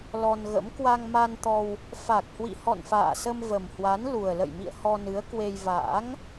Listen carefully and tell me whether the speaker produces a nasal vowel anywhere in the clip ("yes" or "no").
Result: no